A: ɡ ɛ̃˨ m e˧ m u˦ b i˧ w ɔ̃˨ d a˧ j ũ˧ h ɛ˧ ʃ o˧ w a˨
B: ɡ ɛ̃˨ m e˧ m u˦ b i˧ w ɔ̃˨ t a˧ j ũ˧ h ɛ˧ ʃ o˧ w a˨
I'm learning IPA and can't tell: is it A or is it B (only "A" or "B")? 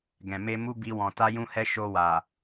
B